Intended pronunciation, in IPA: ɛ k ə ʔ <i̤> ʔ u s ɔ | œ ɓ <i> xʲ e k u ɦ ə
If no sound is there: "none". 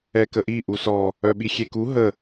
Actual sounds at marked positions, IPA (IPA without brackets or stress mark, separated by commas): i, i